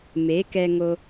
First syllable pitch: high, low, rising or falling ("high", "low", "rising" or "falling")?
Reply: rising